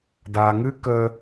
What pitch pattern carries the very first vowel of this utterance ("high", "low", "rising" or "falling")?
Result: low